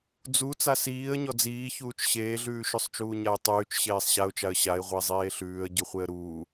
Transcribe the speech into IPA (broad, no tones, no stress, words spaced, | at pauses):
d͡zu t͡sasiːə̯ɲɔ d͡ziːçuːt͡ʃ ɕeːɮʉː ʃʉsˤt͡ʃuːɲaɪ̯tˤʉːt͡ʃ ɕeːsˤɕaʊ̯t͡ʃaə̯ ɕaɪ̯ʁʷe zˤeːɬʉːə̯ ɟʉχʷeə̯ɾuː